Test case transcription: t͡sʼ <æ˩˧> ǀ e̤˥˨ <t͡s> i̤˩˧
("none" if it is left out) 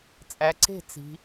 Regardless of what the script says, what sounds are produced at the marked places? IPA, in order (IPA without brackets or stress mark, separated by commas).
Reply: æ˩˧, t͡s